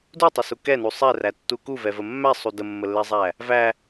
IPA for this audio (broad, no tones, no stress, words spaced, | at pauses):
dutˤəsu kɛnu sˤɛrætːu kuvɛvə mːæsˤu dəmːəlːɛzˤæ | væ